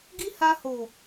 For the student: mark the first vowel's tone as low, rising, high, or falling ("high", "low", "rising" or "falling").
high